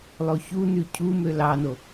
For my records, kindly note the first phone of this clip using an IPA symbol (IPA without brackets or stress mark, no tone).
lˠ